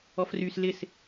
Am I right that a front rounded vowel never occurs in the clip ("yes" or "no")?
no